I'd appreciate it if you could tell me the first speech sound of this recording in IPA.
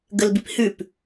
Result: ɡ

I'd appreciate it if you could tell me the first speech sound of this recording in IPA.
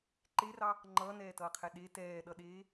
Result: ǃ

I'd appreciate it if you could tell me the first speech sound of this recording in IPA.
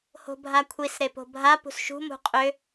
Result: h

